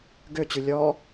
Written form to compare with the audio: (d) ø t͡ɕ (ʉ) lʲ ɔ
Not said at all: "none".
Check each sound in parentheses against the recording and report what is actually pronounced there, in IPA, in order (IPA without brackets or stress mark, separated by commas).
ɡ, ʉ